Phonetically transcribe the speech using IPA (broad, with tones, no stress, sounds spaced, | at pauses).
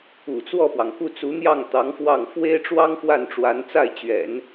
ṵ˨˩ t͡s w ɔ˥˩ p w ɑ˩ ŋ k u˥˩ t͡s u˧˥ n̪ j ɑ˥˩ ŋ t̪ ɑ˧˥ ŋ f w ɑ˥˩ ŋ f w e˥ ɪ̯ ʈ͡ʂ w ɑ˥ ŋ f w a˥˩ n ʈ͡ʂ w a˧˥ n t͡s a˥˩ ɪ̯ t͡ɕ ɥ ɛ̰˨˩˦ n